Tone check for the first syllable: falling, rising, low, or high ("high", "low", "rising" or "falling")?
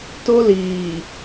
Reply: high